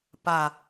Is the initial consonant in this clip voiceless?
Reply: yes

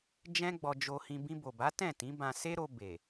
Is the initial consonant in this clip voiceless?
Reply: no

